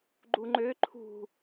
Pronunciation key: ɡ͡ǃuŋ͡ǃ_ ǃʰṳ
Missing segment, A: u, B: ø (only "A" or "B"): B